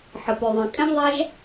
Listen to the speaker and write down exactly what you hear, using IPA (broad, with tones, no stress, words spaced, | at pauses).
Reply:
ħə˩ pø˩ðˤɛ̃˩ kʼɛ̃˥ʒðˤa˥ʒ